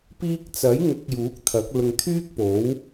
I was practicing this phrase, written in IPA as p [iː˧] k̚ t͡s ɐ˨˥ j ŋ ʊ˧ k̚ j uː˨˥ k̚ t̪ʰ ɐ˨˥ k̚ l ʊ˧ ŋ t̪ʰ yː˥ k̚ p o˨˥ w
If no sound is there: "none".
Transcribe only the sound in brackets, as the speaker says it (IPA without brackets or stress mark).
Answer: iː˧